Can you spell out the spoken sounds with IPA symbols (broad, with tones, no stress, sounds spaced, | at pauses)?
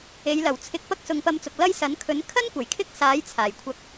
e˨˧ j l ɐ˨˩ w t͡sʰ ɪ˨˥ k̚ p ɐ˥ k̚ s ʊ˨˧ ŋ p ɐ˧ m t͡s ʊ˨ k̚ l ɐ˥ j s ɐ˨˥ n kʰ ɵ˨˥ n kʰ ɐ˥ n kʷ ɐ˨˩ j kʰ ɪ˥ k̚ s aː˨˥ j t͡sʰ aː˨˩ j kʷʰ ɐ˧ k̚